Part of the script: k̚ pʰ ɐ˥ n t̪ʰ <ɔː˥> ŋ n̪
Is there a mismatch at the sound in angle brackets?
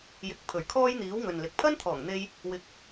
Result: yes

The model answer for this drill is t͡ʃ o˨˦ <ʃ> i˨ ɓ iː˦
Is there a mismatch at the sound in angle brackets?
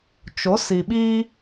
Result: yes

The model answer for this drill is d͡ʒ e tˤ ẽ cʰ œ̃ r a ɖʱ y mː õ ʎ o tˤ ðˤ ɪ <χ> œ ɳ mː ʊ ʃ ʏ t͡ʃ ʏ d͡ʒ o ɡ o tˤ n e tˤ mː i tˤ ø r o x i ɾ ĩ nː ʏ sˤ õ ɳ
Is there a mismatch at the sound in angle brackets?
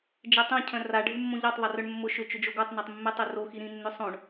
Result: yes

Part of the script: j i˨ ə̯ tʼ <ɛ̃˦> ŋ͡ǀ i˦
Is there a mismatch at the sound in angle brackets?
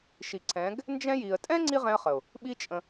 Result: no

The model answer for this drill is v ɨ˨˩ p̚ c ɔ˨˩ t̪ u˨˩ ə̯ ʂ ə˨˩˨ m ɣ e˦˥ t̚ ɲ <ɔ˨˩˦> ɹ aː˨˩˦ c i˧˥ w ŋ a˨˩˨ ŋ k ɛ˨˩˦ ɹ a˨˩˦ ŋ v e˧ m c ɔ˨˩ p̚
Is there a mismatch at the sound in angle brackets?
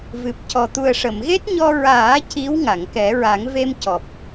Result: yes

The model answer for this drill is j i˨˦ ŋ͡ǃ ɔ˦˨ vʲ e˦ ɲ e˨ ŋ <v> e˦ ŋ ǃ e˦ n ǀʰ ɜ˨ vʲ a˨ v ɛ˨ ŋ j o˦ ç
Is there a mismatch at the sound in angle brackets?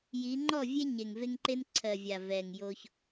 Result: no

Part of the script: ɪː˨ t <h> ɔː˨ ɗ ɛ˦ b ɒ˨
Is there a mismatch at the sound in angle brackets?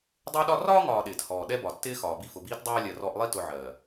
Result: no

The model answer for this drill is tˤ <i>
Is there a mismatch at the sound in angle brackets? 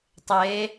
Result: yes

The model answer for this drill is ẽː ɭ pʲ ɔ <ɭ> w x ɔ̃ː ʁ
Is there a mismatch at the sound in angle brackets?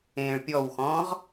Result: yes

